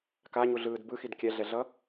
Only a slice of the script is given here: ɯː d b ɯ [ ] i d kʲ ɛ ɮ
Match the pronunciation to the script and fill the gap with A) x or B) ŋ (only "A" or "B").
A